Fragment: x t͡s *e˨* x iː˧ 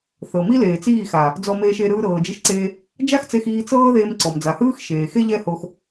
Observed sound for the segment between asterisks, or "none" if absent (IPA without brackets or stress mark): e˧